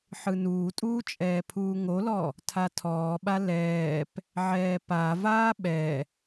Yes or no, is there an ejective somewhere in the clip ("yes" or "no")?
yes